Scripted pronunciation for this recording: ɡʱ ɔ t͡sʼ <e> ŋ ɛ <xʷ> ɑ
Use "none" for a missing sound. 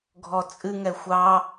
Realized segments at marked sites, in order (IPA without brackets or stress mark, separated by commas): ɨ, xʷ